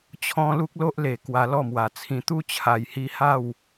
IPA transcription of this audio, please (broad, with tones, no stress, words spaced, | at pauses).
t͡ɕʰɔ̃˦ lu˦k̚lo˦ʔle˨˩ kwa˧lɔ˥˧mwa˨˩t͡sʰĩ˧ t̪u˦ t͡ɕʰa˨˩jhi˧ ha˥˧w